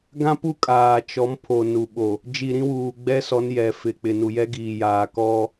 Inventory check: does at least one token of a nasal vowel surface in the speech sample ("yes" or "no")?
yes